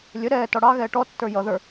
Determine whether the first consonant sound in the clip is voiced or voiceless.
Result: voiced